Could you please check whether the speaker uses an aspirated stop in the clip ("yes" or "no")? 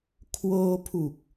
yes